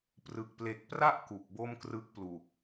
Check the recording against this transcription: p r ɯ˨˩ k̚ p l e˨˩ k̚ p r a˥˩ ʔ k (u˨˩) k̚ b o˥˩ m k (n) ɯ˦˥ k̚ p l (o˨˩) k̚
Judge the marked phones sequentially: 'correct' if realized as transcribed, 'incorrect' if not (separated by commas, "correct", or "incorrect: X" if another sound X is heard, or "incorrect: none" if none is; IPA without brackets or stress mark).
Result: correct, incorrect: r, incorrect: u˨˩